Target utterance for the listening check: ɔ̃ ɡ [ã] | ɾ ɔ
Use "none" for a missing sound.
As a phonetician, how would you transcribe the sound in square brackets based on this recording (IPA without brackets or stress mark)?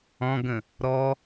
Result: ə̃